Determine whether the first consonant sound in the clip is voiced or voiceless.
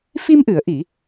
voiceless